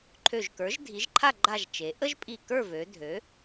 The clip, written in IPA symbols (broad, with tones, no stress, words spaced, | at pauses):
ǃʰø˧˩ʒkə˞˩˥ʒdʱi˩˥ʒǃʰa˥˨ ɡ͡ǃa˥˨ʒt͡ʃe˩˥ ʔə˥ʒpʼi˧˩kə˞˥˨vø˩˧ dʱø˩˥